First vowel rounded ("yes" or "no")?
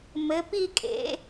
no